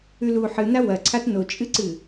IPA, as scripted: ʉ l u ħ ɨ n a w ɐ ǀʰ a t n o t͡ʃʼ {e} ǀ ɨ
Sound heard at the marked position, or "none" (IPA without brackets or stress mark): ɨ